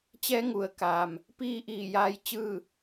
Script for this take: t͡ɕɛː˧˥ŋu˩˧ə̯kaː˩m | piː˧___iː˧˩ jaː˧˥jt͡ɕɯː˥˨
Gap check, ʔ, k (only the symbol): ʔ